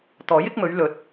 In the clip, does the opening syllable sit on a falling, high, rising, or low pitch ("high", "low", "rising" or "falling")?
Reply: rising